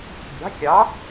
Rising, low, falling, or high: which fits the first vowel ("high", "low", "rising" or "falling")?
rising